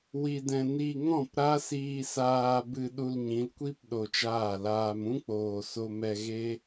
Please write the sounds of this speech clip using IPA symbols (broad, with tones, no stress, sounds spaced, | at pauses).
w i˧ d ɛ̃˧ n i˧ ŋ ɔ̃˦˨ p ɾ a˦ s iː˧ s aː˧ b ɨ˧ ɗ u˧ l ɲ ĩ˨˦ l kʷ i˦ p ɗ o˧ t͡ʃ aː˦˨ l aː˧ m ũ˦ k͡p oː˨ s o˧ m ɛ˧ ɣ e˦